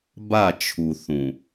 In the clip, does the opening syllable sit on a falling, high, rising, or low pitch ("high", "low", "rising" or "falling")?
falling